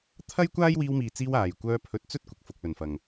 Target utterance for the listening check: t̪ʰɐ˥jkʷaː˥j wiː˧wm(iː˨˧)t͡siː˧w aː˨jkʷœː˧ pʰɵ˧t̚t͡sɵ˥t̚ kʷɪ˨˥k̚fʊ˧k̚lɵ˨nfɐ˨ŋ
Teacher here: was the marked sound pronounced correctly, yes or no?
no